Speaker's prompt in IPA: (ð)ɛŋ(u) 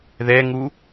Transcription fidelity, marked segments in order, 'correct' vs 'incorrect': correct, correct

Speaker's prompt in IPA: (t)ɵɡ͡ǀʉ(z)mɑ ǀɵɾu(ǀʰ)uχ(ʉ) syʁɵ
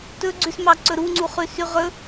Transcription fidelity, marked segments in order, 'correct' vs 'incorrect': correct, incorrect: s, incorrect: ŋ͡ǀ, correct

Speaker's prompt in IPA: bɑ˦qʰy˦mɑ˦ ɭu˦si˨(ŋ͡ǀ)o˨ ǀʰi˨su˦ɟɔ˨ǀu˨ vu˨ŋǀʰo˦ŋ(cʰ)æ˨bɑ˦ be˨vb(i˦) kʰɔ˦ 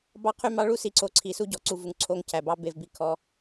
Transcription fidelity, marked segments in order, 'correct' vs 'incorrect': incorrect: ǀ, correct, incorrect: i˨

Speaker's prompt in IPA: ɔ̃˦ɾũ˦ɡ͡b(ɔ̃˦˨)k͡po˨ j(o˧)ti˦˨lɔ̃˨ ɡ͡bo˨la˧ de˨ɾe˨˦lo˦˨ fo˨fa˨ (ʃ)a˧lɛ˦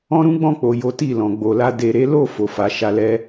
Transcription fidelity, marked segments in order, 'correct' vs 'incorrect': correct, incorrect: o˨˦, correct

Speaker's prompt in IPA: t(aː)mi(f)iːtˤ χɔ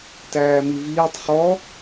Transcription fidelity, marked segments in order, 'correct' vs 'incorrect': incorrect: æː, incorrect: v

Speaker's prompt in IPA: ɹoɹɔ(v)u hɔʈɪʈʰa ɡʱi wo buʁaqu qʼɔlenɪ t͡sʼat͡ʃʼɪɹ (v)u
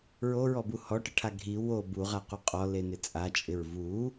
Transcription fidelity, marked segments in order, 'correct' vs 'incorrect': incorrect: b, correct

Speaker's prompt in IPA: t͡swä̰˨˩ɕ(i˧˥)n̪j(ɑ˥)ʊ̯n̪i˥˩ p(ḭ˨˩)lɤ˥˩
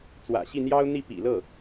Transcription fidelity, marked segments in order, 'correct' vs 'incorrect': incorrect: i˥˩, correct, correct

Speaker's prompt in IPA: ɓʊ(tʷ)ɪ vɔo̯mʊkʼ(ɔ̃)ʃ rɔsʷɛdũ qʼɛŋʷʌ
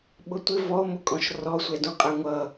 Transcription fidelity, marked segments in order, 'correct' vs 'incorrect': correct, correct

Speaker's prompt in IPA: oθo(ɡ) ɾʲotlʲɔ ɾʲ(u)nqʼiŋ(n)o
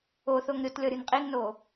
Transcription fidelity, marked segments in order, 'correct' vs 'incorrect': incorrect: ŋ, correct, correct

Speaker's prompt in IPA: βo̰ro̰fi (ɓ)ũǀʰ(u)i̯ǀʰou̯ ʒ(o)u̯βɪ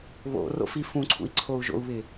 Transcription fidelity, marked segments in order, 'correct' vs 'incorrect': incorrect: f, incorrect: ṵ, incorrect: o̰

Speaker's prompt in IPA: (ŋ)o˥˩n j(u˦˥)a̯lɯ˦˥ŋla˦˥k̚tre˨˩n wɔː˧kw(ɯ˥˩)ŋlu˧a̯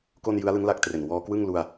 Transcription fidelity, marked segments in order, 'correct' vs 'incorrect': incorrect: k, incorrect: ɯ˦˥, correct

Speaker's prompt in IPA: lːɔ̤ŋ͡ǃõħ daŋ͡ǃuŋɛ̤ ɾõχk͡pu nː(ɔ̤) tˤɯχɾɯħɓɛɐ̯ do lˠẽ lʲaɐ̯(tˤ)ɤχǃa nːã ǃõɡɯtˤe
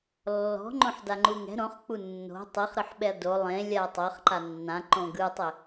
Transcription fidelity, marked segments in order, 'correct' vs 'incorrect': incorrect: o̤, correct

